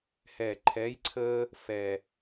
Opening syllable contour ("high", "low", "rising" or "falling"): low